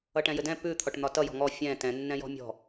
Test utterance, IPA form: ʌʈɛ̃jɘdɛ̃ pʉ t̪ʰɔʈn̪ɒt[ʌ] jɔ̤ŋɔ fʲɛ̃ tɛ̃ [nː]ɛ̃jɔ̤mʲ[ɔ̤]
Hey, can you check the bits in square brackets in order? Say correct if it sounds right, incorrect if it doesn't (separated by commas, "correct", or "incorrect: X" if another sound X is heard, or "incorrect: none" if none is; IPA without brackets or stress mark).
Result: correct, correct, correct